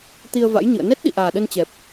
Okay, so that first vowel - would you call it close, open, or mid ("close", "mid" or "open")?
close